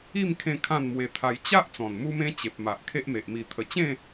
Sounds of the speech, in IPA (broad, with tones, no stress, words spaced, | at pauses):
i˥˧m kʰẽ˥˧kʰã˥˧n mwe˧t̪ʰa˧j t͡ɕa˦ʔ t͡sɔ̃˨˩nmu˦mẽ˦ t͡ɕe˨p̚ma˨ʔ kʰe˦ʔme˨ʔ mi˨˩t̪ʰə˨˩t͡ɕẽ˥˧